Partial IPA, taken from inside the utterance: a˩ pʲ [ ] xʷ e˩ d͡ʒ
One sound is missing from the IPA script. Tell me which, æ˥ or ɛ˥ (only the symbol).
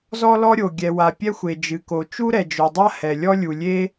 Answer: ɛ˥